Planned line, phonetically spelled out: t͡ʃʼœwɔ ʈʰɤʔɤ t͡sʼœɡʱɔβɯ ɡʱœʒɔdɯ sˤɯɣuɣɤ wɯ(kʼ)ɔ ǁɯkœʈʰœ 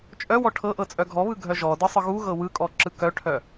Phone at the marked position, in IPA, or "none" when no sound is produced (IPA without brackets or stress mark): kʼ